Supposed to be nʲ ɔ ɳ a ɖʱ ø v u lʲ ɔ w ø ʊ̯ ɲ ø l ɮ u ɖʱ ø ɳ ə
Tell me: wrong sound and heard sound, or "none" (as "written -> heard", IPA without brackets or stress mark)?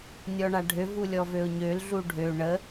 w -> v